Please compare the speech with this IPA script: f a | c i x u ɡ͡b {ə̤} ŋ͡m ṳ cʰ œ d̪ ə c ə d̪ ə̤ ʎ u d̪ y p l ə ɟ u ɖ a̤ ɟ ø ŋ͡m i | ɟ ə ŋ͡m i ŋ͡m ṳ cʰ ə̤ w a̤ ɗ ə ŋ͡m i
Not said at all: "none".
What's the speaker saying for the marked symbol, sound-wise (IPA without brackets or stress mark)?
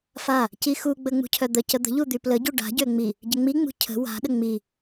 ə